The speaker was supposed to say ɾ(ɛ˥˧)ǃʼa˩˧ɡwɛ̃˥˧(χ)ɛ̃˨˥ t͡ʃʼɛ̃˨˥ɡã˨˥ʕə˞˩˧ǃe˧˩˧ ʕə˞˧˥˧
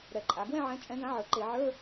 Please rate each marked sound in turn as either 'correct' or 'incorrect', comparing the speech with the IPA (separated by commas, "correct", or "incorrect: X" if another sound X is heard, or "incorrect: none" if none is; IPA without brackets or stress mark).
incorrect: ɛ˨˩, incorrect: ʕ